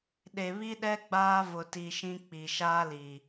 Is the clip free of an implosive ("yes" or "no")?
no